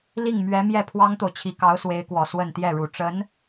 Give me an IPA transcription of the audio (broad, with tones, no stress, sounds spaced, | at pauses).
l i˥˩ ŋ m ɥ ɛ˧˥ m j ɛ˥˩ pʰ w ɑ˥ ŋ t̪ o˨ ʊ̯ t͡ɕʰ i˧˥ k ɑ˧˥ ʊ̯ s w e˧˥ ɪ̯ k w ɔ˨˩ s w ə˥˧ n t̪ j ɛ˥˩ ɻ u˨˩ ʈ͡ʂ ə˧˥ n